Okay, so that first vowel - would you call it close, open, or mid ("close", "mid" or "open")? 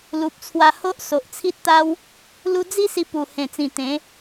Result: close